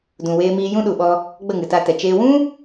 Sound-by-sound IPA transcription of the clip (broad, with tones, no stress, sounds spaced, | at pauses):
d ũ˧ w eː˦ m iː˦ j ũ˦ ɗ u˨ ɓ ɔ˧ | ɡ͡b ə˦˨ ŋ ɨ˨ t a˧ t ɛ˨ t͡ʃ eː˧ w ũ˦